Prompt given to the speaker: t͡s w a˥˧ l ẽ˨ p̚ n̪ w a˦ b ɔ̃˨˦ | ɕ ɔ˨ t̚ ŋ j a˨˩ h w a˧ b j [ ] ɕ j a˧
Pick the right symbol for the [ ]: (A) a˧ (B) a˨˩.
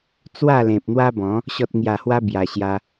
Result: B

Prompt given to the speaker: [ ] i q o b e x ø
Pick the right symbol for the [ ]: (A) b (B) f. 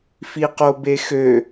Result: B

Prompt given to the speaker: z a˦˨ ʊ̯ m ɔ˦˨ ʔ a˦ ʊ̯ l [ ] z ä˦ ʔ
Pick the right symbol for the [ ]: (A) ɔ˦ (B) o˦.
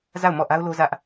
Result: B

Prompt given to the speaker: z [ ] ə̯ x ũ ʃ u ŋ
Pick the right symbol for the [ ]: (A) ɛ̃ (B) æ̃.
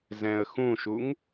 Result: A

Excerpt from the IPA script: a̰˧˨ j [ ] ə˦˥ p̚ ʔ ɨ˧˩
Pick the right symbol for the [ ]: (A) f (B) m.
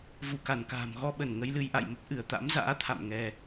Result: B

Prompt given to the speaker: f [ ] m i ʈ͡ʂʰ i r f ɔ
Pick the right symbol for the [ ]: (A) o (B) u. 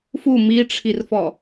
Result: B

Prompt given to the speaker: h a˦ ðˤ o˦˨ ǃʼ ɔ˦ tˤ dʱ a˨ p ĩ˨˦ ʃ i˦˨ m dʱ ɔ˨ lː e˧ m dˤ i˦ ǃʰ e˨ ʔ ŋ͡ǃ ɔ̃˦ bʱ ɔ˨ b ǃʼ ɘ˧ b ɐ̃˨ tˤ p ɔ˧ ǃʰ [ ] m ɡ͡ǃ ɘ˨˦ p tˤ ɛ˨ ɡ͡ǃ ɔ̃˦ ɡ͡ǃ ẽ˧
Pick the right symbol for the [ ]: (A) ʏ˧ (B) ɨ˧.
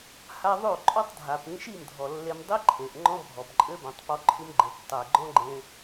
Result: B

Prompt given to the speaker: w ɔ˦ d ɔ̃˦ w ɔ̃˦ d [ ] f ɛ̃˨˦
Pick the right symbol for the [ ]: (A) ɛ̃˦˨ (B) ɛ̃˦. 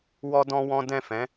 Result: A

